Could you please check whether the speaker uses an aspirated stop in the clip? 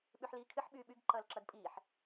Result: yes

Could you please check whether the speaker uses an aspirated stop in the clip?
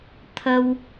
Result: yes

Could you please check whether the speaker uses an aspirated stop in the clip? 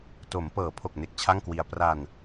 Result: yes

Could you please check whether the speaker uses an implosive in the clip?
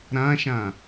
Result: no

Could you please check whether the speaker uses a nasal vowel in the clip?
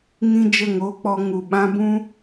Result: yes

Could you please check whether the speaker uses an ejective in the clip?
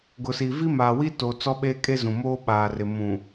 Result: yes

